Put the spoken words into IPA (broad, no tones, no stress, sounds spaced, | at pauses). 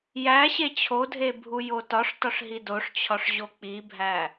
j æ ɕ e t͡ɕʰ o dʱ e bʱ u j o t ɒ ʂ t ɒ ʂ ɦ i d o ʂ t͡ɕʰ ɒ ʂ ʑ o k͡p i bʱ æ